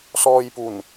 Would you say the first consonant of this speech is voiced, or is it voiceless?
voiceless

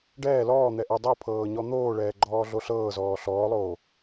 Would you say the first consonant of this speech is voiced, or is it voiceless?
voiced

